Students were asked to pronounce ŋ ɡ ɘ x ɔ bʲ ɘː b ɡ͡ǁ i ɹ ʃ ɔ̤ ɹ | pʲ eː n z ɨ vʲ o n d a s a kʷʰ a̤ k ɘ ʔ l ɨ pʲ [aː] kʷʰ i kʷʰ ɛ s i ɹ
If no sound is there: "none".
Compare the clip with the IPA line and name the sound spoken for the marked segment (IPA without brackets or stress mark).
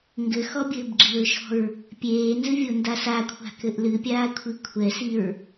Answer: aː